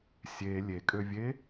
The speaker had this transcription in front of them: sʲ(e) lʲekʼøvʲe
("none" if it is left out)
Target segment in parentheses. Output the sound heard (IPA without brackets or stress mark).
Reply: e